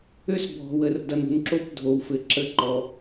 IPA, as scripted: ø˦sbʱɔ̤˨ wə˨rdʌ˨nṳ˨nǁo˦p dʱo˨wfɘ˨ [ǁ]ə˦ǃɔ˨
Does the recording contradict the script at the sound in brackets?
no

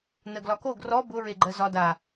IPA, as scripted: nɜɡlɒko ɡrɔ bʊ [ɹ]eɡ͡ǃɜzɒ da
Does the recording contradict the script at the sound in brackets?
no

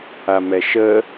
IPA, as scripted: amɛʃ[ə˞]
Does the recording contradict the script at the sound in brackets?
yes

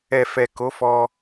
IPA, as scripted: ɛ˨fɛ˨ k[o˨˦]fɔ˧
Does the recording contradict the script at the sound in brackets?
no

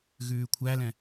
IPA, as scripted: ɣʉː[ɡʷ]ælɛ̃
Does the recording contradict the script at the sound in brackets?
yes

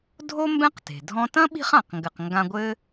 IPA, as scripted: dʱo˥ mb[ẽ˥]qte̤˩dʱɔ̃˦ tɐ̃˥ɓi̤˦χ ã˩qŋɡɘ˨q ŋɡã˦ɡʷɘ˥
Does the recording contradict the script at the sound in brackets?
yes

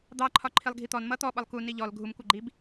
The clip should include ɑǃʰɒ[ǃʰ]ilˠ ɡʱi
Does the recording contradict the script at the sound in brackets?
no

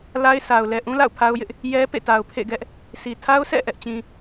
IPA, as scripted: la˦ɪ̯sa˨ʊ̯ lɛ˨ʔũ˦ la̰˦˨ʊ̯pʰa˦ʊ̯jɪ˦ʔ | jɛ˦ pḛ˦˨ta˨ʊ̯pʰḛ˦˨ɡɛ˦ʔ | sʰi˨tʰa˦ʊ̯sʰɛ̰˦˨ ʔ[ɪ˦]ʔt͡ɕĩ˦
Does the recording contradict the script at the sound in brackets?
yes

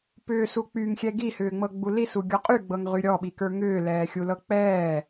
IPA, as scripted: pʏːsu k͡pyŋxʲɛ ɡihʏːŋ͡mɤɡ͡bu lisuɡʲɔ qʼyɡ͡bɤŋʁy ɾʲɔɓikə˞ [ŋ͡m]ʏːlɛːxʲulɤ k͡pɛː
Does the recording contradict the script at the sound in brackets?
yes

